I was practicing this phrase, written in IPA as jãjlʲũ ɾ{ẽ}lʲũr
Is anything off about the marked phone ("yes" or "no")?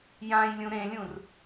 no